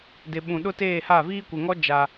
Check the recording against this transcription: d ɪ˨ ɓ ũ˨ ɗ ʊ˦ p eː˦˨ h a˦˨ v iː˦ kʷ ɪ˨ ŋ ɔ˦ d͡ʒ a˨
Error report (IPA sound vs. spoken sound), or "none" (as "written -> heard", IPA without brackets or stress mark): p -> t